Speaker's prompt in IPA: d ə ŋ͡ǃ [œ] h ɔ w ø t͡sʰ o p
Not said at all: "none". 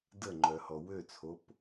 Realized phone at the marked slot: œ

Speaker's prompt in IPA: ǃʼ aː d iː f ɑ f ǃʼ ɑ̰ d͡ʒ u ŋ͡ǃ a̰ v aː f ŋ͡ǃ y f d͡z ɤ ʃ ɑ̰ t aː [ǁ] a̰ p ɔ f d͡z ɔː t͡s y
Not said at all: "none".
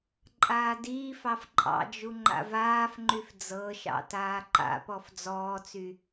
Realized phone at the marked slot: ǃ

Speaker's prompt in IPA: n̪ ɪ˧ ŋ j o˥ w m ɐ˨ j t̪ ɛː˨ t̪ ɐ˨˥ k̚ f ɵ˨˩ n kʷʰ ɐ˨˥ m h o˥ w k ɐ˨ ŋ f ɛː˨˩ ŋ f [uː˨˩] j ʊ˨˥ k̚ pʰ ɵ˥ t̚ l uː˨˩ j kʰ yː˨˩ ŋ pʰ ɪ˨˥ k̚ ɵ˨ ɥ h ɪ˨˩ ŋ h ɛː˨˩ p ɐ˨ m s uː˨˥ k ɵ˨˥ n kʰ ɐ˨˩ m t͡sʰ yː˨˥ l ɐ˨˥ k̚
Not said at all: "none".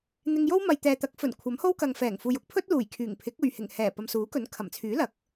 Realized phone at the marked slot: uː˨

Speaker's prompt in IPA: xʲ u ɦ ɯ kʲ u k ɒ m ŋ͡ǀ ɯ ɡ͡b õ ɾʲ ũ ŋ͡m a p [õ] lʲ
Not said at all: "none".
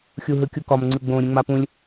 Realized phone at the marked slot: ũ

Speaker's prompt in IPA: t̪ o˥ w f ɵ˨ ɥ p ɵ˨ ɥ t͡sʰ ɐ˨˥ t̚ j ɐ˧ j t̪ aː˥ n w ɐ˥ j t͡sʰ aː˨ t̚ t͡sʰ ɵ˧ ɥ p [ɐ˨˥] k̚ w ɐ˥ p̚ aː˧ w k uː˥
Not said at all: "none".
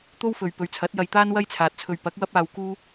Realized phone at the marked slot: ɐ˨˥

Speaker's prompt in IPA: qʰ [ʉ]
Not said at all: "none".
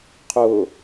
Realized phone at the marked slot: ʊ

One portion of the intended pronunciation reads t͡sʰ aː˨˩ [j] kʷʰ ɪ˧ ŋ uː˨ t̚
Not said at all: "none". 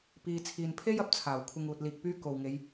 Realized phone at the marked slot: w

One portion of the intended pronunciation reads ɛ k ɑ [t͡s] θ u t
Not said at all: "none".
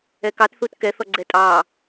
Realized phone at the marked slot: t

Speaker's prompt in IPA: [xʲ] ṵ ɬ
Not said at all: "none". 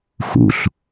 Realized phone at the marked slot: x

